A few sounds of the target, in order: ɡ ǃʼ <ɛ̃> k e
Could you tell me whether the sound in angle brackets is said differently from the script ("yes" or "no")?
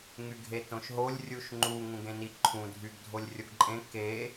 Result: yes